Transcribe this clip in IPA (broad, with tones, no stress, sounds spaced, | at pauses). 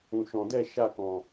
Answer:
ũ˨ ʃ ɔ̃˨ d ɛ˦˨ ʃ a˦˨ k ɔ̃˨